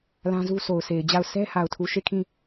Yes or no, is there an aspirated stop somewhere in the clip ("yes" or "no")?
yes